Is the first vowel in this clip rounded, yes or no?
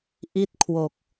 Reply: no